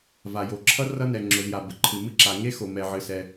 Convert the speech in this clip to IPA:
v a˩ j o˩ ǁʰ ʌ˥ r ʌ˥ n ɛ˩ ŋ͡ǁ ʊ˩ z j a˩ b ə˩ ǃʰ ɨ˩ m ɨ˥ ǁ a˩ ŋ e˥ x o˩ m ɛ˩ ʕ ɨ˩ s ɛ˩

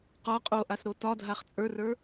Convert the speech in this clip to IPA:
q ɒ qʼ o ʔ a s ɾ o t ɒ dʱ a χ t͡sʼ ə˞ r ə˞

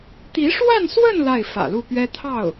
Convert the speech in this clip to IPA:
t̪ i˧˥ ʂ w a˥˧ n s w ə˥˧ n l a˥˩ ɪ̯ f ä̰˨˩ l u˥˩ p ɥ ɛ˥ t̪ʰ ɑ˥˩ ʊ̯

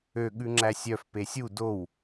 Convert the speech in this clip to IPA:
ø ɠ ʉ ŋ͡ǁ æ sʲ œ f p e sʲ u d o w

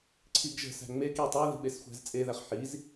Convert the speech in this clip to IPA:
ǀʰ i ɡ ʒ ə̤ s æ̤ ŋ͡m e k i tˤ e ð i̤ ɓ e s xʷ æ̤ z t͡sʼ e ð æ χ ħ i z

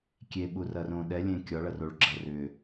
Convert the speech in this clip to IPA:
kʲ e ɓ u r ɐ r õ ɗ ɛ lʲ ẽ kʲ ɒ ɭ ɐ r o ɭ ɡ͡ǁ ɐ r ʏ

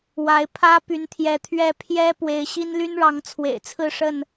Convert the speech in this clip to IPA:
w a˨˦ ɪ̯ pʰ ä˦ p y˨˦ n t̪ʰ j ɛ˨˦ t̪ʰ ɥ ɛ˦ pʰ j ɛ˦ p w e˨˦ ɪ̯ ɕ i˦ n l y˦ n ɻ ɑ˨˦ ŋ t͡sʰ w ḛ˨˩ ɪ̯ t͡sʰ ɹ̩˥˨ ʂ ə˥˨ n

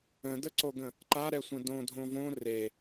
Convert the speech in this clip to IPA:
ə̃ d ə ǀ o ɡ ə̃ | ǃ a ɾ ɛ sʷ ə̃ d õ dʱ õ v õ r e

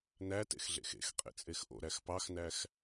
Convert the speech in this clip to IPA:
n æ t ḛ x ɮ ḛ x ḛ x qʼ ḛ t͡sʼ e x ʔ o̰ ɾ æ x p ɑ x n æ x

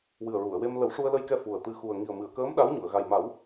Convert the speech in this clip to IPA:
w ɨ˨˩ ə̯ ɹ u˨˩˨ ə̯ w e˧ m l ə˨˩˦ w ʂ u˧ ə̯ l ə˧ j k ɛ˧ f u˨˩ ə̯ t̪ ɨ˧ x u˨˩ ə̯ ŋ i˨˩ ə̯ m ɨ˨˩˨ ə̯ k əː˧˥ m ɗ a˧˥ w ɲ u˨˩˨ ə̯ ɣ a˨˩ j m a˨˩˦ w

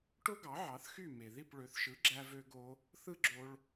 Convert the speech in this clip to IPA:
ʈ o˥ ɡ ɑ˩˥ ʕ ɑ˩˥ θ x y˥˩ m e˩ ð i˥˩ p ɭ ø˩˥ θ ʃ ɯ˩˥ ɡ͡ǁ æ˧ v ø˧ ɡ o˧ | θ ɯ˥ ɡ͡ǁ o˧ ɭ

